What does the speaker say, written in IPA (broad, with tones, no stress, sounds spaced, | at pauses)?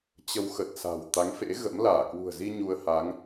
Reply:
t͡ɕ ə˧ w x ə˨˩ t̚ s a̤˨˩ w t̪ a˨˦ ŋ f ḛ˧˥ ɣ ə̰˧˥ m l aː˧˩ k w ṳ˨˩ ə̯ z i˧ ɲ u˧ ə̯ h a˨˦ ŋ